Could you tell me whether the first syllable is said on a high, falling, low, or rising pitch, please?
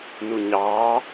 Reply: low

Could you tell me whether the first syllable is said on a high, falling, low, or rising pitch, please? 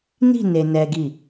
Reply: falling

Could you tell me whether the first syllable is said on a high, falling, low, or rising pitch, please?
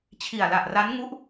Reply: low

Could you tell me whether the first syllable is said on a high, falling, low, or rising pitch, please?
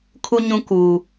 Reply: high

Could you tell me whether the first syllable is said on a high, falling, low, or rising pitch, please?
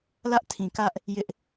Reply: high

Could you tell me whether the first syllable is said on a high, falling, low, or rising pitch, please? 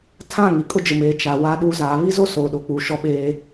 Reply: falling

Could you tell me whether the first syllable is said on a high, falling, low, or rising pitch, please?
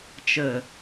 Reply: low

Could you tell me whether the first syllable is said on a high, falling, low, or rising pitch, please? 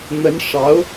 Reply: rising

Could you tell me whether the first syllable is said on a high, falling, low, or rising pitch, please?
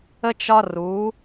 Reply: high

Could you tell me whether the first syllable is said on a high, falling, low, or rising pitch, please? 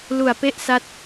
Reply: low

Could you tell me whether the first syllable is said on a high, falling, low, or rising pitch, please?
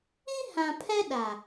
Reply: high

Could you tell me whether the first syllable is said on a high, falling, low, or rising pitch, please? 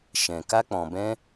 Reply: low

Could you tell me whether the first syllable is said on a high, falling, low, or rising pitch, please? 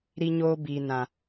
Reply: high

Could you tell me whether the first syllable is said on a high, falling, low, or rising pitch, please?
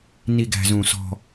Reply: low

